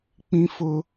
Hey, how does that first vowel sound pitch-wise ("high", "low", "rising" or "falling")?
high